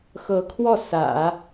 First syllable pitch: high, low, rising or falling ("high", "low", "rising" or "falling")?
rising